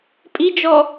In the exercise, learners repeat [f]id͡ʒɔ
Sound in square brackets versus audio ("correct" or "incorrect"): incorrect